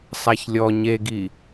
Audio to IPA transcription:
sˤ a ç lʲ ɔ ɲ e ɡ i

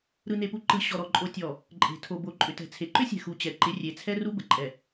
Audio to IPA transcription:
ɾ ɯ˨ n e˨ p u˨ ǃ ɯ˨ ɕ ɔ˨ ɾ ɔ˨ ǃʼ o˨ tʲ ɔ˨ | ǃʼ e̤˨ tʰ o˨ b o˨ ǃʼ ʏ˨ t ɛ̤˨ t͡sʰ e˨ ǃ ʏ˦ sʲ ɛ̤˨ x u˨ t͡ɕ ɛ˨ ǃ ɪ˨˦ rʲ e˨ t͡sʰ ɛ˦ r u˦ b ə˨ ǃʼ ɛ˨

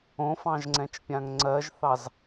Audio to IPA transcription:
õ f ɑ̃ ʒ ŋ͡ǀ ɛ̃ t͡ʃ pʲ ã ŋ ŋ͡ǀ ɜ ʒ θ ɑ z

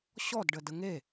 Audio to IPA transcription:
ɕ ɔ d ɖ ə d ə ŋ e

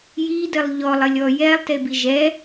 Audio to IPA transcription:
j i d ɘ lˠ ʎ ɔ lˠ ɘ lʲ ɔ j ɛ lˠ t e b i ʒ ɛ

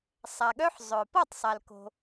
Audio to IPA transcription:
sˤ æ˨ ɠ œ˦ ħ zˤ œ˨ p ɔ˦˨ tˤ sˤ æ˨ l k o̤˧

